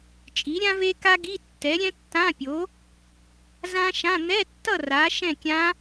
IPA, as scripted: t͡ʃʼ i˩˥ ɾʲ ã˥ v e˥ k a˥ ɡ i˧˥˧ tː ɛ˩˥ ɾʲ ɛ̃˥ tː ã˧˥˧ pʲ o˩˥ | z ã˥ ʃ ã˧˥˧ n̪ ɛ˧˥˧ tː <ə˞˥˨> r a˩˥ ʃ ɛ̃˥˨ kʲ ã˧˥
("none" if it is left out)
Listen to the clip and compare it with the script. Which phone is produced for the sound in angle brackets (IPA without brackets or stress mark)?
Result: ʌ˥˨